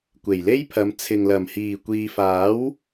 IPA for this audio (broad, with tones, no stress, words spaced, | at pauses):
kʷe˨˩jle˥jpʰɐ˨˧m t͡sʰɪ˨ŋlɐ˨˩m hiː˨˩kʷiː˨faː˨˥w